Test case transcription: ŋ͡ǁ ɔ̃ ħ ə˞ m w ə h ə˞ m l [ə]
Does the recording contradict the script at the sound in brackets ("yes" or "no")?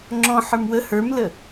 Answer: no